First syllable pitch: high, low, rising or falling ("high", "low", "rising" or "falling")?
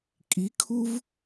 rising